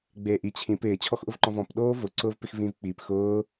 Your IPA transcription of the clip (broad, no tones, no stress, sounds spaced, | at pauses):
ɡ͡b eː ʔ i t͡ɕʰ ĩ p ɪː t͡ɕʰ ɔ x ʔ ʊ v ǃ ɔ̃ v ɔ̃ p ɗ oː v ʊ ǀ ʊː v p ɪ x v ĩ v k͡p i p x ʊː